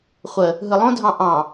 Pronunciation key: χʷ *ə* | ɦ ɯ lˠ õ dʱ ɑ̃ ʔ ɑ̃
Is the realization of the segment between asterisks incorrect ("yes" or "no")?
no